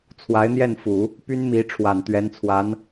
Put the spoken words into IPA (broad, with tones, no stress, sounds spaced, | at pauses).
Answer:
t͡sʰ w a˧˥ ɪ̯ n̪ j ɛ˥˩ n f u˨˩˦ | p y˥ n m i˧˥ ʈ͡ʂʰ w a˨˩ n t̪ ɥ ɛ˧˥ n t͡sʰ w a˧˥ n